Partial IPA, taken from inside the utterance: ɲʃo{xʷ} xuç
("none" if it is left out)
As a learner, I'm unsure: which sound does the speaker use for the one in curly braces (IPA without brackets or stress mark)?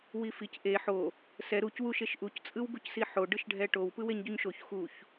ç